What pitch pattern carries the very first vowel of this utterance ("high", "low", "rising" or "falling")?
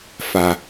low